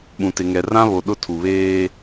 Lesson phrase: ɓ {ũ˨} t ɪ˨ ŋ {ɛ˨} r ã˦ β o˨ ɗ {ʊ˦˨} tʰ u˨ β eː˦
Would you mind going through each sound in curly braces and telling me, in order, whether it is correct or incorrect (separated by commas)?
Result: correct, correct, correct